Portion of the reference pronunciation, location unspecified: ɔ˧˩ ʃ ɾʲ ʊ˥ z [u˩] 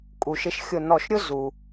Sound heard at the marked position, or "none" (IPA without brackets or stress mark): u˩